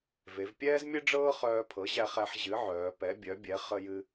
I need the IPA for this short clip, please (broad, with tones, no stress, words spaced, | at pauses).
ve˩˧vpʲɛː˥zmʲɨ˥ɖ͡ʐɤː˥ χœː˧pʰɤ˩˥ʑæ˧χæ˧ħ ʑɨ˩˥ʕœː˩˧ pɛ˩˥bʲœ˩˥bʲɛ˩˥ χə˧jɨ˧